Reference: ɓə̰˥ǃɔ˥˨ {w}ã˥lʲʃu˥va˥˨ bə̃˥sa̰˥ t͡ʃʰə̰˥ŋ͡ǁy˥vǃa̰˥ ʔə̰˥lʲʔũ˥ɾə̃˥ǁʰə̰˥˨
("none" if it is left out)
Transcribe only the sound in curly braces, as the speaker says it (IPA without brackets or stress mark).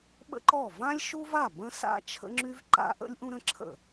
v